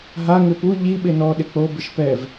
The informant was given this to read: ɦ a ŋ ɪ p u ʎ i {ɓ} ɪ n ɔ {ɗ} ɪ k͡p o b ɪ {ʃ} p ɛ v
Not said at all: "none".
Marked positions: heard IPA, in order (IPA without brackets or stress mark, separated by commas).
ɓ, ɗ, ʃ